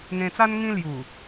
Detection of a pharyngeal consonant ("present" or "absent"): absent